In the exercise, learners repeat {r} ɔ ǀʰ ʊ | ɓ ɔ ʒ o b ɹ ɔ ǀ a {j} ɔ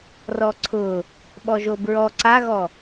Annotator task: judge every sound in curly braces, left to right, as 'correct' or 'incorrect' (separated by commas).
correct, incorrect